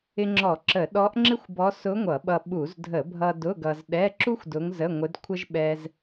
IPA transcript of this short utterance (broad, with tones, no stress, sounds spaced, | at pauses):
ɪ˧ ŋ͡ǁ ɔ˧˩˧ ǁ ə˧˩˧ ɗ ɔ˧˥ ʔ ŋ͡ǁ ɪ˥ xʷ b ɔ˧˥ s ʊ˧˥ ŋʷ ʌ˧˩˧ ɓ ʌ˧ ɓ u˧˩˧ z dʱ ə˧˩˧ bʱ ʌ˧ d ʊ˧˥˧ ɡ ʌ˧ z ɗ ɛ˧˥˧ ǁ u˥ xʷ d ʊ˧˥ ŋ z ə˧˥˧ ŋʷ ɪ˧˥ d kʷʰ ə˥ ʒ ɓ ɛ˥ z